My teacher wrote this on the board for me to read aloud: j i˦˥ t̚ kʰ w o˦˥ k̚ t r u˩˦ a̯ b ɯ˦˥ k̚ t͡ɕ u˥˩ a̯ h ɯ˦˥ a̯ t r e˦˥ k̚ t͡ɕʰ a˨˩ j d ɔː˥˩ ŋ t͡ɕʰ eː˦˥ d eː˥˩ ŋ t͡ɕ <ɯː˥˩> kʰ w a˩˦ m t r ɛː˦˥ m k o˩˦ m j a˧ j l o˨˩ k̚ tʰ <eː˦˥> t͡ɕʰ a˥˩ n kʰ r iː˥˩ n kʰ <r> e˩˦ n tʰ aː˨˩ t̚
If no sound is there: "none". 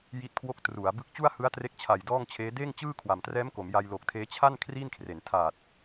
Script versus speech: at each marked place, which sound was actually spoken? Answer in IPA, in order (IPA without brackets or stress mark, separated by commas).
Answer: ɯː˥˩, eː˦˥, r